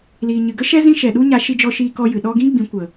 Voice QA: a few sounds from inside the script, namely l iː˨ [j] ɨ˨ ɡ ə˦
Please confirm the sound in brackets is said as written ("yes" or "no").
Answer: no